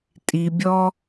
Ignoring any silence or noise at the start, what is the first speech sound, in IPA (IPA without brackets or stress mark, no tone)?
tʼ